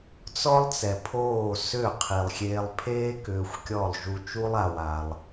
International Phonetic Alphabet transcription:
t͡sɔ˦lˠt͡sɛ˨pʰoː˦˨ sʏ˦˨ qʰi˨lˠxʲeː˧lˠ pʰeː˦ kʏː˧xʷkʲɔ˦˨lˠ ʒu˧t͡ʃu˦lˠ a˧wa˧lˠ

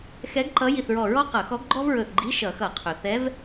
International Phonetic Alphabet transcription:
xɛ˧˥ɡ ǃʌ˧˥ji˧˩θɹɔ˧˩ɹɔ˥ qʌ˧˩˧xɔ˧˥ɡ ɡ͡ǃɔ˥vɹɵ˧˩θɡ͡ǃi˧˥˧ ʃʌ˧˩˧xʌ˧˩˧ qʰɵ˩θɛ˧˥v

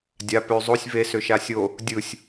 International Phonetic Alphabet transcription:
dʲa pø zˤosʲ ve søʃasʲo | dʲɯsʲ

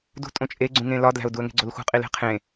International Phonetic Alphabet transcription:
dṳ tʼõt͡ʃʼeɡ͡ǀũŋẽ lɒdlæ̤ʊ̯ duə̯ŋe̤ɡ͡ǀolxṳ qʼile̤qʰẽ

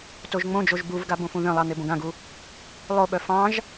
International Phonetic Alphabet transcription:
toʒŋ͡mõd͡ʒoʒ buvɡa bõfũðœ̃lˠɑ n̪ebõɡãɡu | lˠoɓœ fɑ̃ʒ

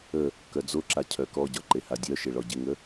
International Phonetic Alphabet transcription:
ə | kœd͡zoǁa cʰœkɔɟɒ ǃehadʲœʃe ɭɔɟɪŋə

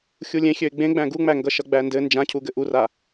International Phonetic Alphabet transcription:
xʲulʲẽ xʲøɪ̯ɡ͡bẽ ɡ͡bæ̃ɡuŋ͡mæ ŋɡʌʃʌɡ͡bændɘ nd͡ʒãcʰuɡɘ ʔura

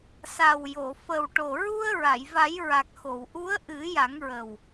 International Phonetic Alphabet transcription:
sa˨˩wjo˨˩˨ fə˨˩wʈo˨˩ ɹu˧ə̯ ɹa˨˩˨jva˨˩˦jɹa˨˩k̚ xo˨˩˨wʔu˧˥ə̯ ʔɨ˨˩˦ ja˨˩˦ŋɹə˨˩w

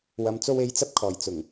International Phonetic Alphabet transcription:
wɐ˨mt͡so˧we˨˥jt͡sɐ˧p̚ kʰɔː˨˩jt͡sʊ˨˩ŋ

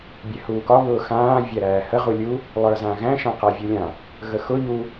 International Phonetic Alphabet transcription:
bʲɛhuːkɒ βʊːxãː vʲæɾæːhə ʁulʲu | lˠə˞zãɣæ̃ ʃãqavʲulʲã | ɣəxʊ ʎu

